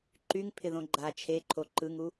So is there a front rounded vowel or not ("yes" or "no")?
yes